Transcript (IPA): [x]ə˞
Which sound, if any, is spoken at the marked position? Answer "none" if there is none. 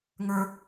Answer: ŋ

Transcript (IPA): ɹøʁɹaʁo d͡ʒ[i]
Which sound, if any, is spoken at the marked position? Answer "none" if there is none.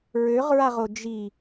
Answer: i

